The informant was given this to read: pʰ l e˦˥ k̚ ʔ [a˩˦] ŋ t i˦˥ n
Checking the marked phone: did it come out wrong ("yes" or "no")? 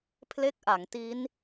no